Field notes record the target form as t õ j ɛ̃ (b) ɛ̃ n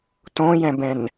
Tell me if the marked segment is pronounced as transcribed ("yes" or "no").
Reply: yes